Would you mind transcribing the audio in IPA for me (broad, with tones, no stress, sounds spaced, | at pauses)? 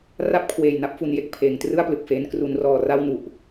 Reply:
r a˥˩ p̚ kʰ w eː˨˩ j n a˦˥ p̚ f u˩˦ n j e˦˥ k̚ pʰ eː˩˦ ŋ t r ɯ˥˩ a̯ p l ɯ˨˩ k̚ f eː˦˥ n k r u˦˥ n r ɔː˧ r a˥˩ w n u˨˩ ʔ